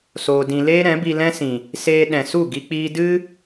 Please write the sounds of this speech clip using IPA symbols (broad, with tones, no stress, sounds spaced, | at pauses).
s oː˧ d ĩ˧ l eː˦ ɾ ɛ̃˨˦ b i˧ l ɛ̃˦ s ĩ˨ | s eː˧ ɗ ɛ̃˨ s u˦˨ ɡ i˧ k͡p iː˧ d ɨ˦